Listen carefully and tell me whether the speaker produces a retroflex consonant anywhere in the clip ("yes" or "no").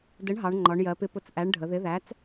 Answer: yes